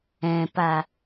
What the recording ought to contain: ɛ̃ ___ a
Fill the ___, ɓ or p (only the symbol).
p